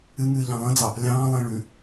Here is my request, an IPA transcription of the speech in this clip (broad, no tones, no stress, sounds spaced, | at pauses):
ɨ ŋ ɨː ʎ ɑ̃ lˠ ə̃ d͡z ɑ | lʲ ɑ̃ː lˠ ẽ ɭ ʉ